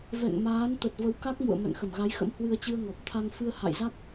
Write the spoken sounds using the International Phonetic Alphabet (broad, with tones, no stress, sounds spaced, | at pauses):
v ɛ̰˧˨ ŋ m aː˨˦ n t̪ ə˨˩ t̚ v ə˨˦ w k a˦˥ k̚ m ṵ˧˨ ə̯ m ɛ̰˧˨ ŋ x ə˧˩ m ɣ a˨˦ j x ə̰˧˥ m h w ɨ˧ ə̯ t͡ɕ ɨ˧ ə̯ ŋ ɔ˨˩ p̚ t̪ʰ a˧ ŋ f ɨ˧ ə̯ h a̰˧˨ j z a˦˥ k̚